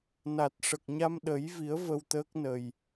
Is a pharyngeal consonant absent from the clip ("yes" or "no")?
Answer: yes